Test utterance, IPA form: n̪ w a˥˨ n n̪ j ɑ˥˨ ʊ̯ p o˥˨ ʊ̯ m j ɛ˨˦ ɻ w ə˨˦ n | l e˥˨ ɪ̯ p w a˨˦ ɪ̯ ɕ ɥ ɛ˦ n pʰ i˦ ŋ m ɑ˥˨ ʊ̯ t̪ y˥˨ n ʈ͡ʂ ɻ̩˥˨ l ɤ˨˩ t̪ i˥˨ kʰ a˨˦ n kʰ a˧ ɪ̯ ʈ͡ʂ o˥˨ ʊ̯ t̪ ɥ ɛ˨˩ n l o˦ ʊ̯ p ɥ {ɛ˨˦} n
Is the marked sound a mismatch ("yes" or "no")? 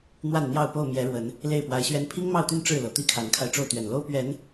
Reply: no